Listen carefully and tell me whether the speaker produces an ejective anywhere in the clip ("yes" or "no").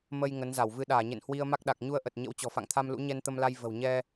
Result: no